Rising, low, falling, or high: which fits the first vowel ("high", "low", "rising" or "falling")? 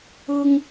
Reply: high